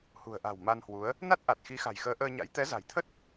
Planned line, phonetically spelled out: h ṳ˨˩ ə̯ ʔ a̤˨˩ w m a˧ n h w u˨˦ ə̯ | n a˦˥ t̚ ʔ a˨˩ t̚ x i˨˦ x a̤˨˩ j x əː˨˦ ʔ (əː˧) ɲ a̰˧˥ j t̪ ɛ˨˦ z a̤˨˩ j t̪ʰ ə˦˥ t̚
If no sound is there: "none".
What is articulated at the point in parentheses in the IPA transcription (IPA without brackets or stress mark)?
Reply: əː˧